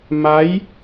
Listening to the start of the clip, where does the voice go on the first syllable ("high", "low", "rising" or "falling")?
rising